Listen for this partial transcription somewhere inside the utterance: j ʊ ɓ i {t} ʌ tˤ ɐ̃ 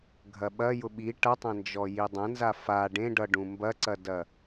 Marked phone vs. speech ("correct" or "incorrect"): incorrect